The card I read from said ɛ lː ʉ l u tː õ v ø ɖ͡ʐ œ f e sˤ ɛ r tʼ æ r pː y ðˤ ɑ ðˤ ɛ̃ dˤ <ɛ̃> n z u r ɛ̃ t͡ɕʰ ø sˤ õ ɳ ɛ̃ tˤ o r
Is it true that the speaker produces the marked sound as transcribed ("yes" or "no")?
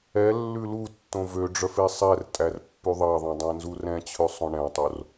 yes